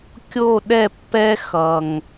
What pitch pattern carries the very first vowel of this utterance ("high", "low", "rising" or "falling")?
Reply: falling